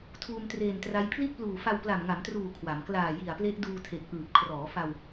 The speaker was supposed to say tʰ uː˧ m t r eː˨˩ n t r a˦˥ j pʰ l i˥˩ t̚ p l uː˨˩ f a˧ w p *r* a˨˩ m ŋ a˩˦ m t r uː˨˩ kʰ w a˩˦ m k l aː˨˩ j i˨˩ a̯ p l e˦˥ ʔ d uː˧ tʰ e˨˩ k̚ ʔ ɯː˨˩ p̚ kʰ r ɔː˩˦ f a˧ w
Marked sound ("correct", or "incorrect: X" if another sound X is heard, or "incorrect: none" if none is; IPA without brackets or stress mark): incorrect: l